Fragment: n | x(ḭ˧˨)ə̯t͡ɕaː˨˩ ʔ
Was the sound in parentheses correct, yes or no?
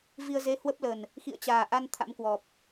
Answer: yes